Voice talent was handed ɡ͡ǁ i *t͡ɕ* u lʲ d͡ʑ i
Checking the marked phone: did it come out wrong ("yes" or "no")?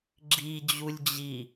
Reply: yes